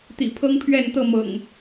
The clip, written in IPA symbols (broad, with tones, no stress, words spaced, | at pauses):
t̪ḭ˨˩pʰɤ˦ŋpʰɥɛ˥˨n t̪ɤ˥˨ mɤ̰˨˩ŋ